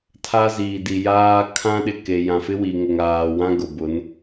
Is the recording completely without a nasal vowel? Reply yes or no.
no